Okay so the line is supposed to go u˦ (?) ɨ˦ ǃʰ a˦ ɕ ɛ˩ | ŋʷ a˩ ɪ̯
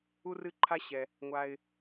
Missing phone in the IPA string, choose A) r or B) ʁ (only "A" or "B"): A